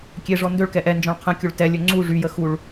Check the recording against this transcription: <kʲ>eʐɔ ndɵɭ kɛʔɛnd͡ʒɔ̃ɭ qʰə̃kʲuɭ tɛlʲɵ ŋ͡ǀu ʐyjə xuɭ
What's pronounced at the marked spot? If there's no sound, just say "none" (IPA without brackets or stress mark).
kʲ